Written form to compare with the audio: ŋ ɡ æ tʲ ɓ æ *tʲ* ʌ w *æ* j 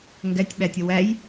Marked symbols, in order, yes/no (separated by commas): yes, yes